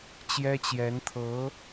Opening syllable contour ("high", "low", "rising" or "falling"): high